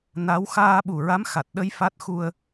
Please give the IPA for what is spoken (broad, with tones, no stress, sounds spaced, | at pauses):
n a˧˥ w x aː˧ ɓ u˨˩ ɹ a˧˥ m x a˨˩ t̚ ɗ ə˧ j f a˦˥ t̚ x u˧ ə̯